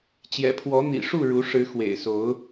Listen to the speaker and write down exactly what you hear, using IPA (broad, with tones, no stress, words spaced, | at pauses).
t͡ɕjɛ̰˨˩pʰwɔ˨˦n̪ḭ˨˩ʂu˥˨ ɻu˨˦ʂɻ̩˨˦ xwḛ˨˩ɪ̯so˨˦ʊ̯